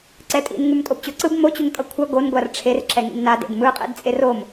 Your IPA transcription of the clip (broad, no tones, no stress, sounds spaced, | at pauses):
ǀ ɛ tʼ ḭ n ŋ u m tʼ o b t͡ɕ o ǀ ɯ b m o t͡ɕ u ŋ tʼ ʌ kʷʰ ʌ ɡ o n ɡʷ a r ʈ͡ʂʰ e r ǁ ɛ ŋ ḭ m n a d ḛ d m ɯ qʼ ḛ d t͡sʼ e r o m